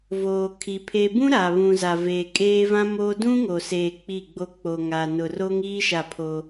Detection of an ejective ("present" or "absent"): present